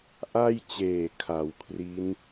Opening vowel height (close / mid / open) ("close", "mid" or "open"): open